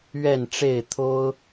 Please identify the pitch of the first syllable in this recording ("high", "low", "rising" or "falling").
falling